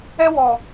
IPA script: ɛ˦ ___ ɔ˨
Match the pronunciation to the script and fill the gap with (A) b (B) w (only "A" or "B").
B